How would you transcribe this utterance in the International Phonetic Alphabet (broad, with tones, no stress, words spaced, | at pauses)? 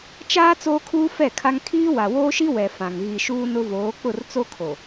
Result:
t͡ʃaː˦ t͡soː˦kʰuː˦fɛ˦˨kʰa˦ŋ kʰiː˦wa˨woː˦ʃi˦ wɛ˨ fã˨ŋ ɣi˨ʃuː˦nʊ˦voː˨˦ k͡pʊ˦˨rt͡so˦kʰo˨